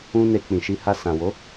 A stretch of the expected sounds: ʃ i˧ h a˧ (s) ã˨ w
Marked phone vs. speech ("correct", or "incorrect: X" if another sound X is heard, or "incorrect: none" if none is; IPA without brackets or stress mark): correct